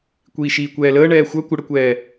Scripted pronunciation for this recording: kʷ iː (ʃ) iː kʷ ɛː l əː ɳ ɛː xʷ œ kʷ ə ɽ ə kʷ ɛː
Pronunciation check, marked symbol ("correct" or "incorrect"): correct